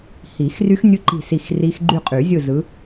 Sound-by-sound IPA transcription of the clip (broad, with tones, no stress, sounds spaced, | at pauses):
h i˨˩˦ x r y˦˥ x nʲ ɯ˦˥ ǃ i̤˦˨ s i˦˨ x r i˦˥ x ɡ͡ǃ y˦˨ qʼ y˨˩˦ zʲ ɯ˦˨ z ɯ˨˦